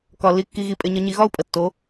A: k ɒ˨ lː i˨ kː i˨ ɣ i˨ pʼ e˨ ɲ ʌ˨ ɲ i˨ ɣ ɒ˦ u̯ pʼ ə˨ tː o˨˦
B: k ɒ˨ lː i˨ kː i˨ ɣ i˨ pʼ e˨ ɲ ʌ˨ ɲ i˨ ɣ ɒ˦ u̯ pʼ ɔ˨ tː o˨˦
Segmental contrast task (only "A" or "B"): A